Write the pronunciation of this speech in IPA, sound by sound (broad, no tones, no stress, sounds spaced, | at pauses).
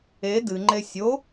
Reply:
e d ɨ ŋ͡ǃ e sʲ o